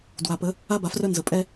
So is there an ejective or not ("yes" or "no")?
yes